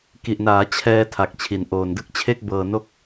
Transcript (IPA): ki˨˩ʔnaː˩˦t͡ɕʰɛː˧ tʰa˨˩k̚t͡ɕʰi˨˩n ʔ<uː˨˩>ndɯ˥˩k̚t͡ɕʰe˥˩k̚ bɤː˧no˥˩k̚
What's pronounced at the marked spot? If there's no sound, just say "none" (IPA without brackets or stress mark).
oː˨˩